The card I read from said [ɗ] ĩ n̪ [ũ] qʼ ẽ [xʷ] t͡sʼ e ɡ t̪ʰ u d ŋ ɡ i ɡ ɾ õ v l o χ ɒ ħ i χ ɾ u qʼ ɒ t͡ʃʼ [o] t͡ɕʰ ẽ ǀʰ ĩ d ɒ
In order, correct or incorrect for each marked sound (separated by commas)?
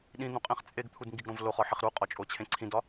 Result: correct, correct, incorrect, correct